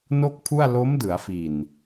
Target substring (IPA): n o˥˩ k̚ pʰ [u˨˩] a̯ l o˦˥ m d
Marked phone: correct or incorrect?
incorrect